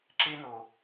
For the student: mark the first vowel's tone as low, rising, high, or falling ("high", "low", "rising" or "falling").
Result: high